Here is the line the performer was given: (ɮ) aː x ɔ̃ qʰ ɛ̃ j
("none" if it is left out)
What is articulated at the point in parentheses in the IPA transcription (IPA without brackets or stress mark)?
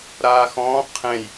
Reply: ɾ